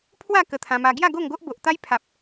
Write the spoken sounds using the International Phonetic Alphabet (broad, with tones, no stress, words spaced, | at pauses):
pʰwa˥˧ kə˧t̪ʰã˧ma˧ ɡja˥˧ ɡo˥˧ŋɡo˦ʔ bo˨ʔt̪a˦j pʰa˨p̚